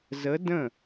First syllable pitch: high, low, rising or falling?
rising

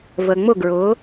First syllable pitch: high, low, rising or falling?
low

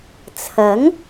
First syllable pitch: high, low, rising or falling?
rising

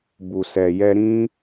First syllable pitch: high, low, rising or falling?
low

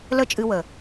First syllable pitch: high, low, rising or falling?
high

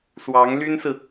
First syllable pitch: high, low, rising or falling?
rising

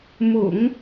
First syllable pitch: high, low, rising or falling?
low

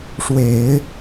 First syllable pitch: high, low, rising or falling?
low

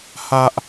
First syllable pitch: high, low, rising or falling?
high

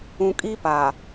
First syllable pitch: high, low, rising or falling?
low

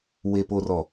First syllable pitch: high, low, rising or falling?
low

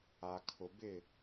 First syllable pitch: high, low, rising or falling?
low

